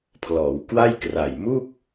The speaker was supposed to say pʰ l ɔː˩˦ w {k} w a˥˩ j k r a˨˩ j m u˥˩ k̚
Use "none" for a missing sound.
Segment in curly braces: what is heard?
k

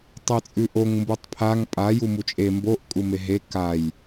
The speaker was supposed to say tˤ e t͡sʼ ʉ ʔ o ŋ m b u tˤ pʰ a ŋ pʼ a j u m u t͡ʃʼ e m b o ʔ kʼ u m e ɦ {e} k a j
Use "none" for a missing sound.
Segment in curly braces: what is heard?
e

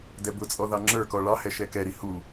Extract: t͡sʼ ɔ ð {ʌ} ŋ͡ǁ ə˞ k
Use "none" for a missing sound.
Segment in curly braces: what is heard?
ɑ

